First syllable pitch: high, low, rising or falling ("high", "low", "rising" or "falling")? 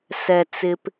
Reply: low